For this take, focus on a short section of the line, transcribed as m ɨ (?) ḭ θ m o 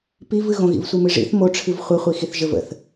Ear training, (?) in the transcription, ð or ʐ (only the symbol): ʐ